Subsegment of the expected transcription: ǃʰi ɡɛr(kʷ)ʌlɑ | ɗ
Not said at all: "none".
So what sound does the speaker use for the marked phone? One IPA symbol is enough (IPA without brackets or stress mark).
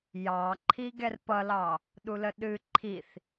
p